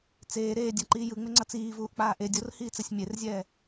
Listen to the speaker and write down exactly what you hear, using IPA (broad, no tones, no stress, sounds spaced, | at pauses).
t͡s eː ɾ eː dʲ a ǃ iː j ɯ ŋ͡m e ŋ͡ǀ ʌ t͡s iː v uː ʔ k͡p aː ʔ e dʲ o r h iː t͡s ɛ sʲ mʲ e r zʲ ɛː